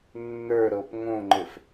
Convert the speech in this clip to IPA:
nː ə˞ ɾ ɤ p ŋ õ ŋ͡ǃ ɘ f

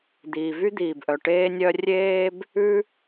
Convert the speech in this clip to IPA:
d̪ iː˩ v y˥ d̪ iː˩ b ʔ œ˩ ʈ eː˥ nʲ œ˥ rʲ eː˥ b | ʉ˥

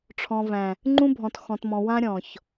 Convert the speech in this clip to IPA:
ʈ͡ʂʰ ɔ̃˨ v æ̃˨ | ŋ͡ǃ ũ˦ bʱ ɔ̃˨ t x ɔ̃˨ t m ɔ̃˨ w ã˦ ɾʲ ɔ̃˨ ç

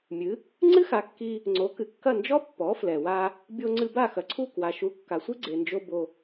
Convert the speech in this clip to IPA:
mʲ ɨ˩˥ | ŋ͡ǀ ɨ˥ x a˩˥ kː i˧ | ŋ͡ǀ o˩˥ k ɨ˩ kː ɐ˥˩ n d͡ʒ ɔ˥ pː ɔ˩˥ f l ɛ˩ w a˧ | bʲ o˧ ŋ͡ǀ ɨ˧ b a˥˩ x ɐ˩ ǀʰ u˥˩ k w a˩ ʃ u˩˥ kː a˩ sʷ i˥ ɡ͡ǀ e˩ n d͡ʒ o˧ b o˧

